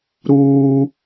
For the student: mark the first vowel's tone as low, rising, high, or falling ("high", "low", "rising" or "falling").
high